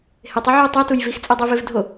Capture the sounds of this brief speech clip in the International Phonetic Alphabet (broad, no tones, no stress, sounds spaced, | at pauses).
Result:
h e tˤ i ʕ o ə̯ tˤ ɛ t u j v i x t͡sʼ ɛ dˤ i v e v dʱ o